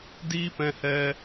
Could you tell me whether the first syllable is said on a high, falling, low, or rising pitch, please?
high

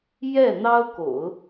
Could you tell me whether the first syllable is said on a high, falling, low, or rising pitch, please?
falling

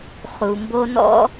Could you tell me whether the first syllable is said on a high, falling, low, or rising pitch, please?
low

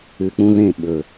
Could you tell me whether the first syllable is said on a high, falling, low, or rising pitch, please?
low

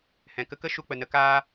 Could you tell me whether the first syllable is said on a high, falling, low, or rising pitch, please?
low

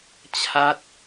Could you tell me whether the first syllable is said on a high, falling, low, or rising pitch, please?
high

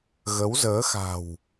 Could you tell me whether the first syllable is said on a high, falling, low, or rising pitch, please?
rising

